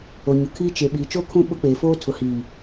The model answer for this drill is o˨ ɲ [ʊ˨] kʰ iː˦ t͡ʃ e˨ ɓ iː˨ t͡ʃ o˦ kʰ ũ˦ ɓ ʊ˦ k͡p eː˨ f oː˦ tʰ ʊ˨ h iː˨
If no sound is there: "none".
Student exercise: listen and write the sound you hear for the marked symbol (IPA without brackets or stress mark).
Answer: ʊ˨